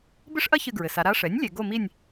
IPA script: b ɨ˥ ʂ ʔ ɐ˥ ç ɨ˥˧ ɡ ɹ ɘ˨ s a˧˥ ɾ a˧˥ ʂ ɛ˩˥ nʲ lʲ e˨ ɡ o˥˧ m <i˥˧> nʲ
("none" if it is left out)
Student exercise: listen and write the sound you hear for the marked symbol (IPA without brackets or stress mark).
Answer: i˥˧